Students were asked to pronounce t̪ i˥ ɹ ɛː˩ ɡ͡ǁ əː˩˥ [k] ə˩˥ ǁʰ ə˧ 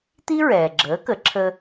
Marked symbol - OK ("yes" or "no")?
yes